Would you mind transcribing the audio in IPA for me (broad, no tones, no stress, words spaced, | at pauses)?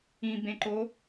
ĩbẽǃo